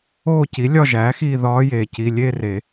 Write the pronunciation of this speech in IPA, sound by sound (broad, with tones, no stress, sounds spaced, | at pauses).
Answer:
oː˦˨ c i˩˥ lʲ ɒ˦˨ ʒ æː˩˥ x iː˦˨ ð ɒː˧˥ j eː˩ c i˩˧˩ lʲ e˦˨ r e˨˩˦